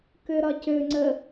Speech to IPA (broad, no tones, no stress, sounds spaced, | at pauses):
k ø ɾ ɒ c ø ŋ͡ǀ ə